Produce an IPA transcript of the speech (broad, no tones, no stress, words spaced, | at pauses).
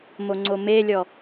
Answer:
moŋ͡ǀomelʲɔ